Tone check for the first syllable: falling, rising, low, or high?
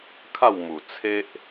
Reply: falling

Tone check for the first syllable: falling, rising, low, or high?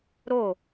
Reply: falling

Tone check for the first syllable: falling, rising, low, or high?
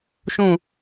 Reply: falling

